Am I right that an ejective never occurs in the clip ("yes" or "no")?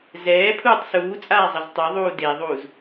no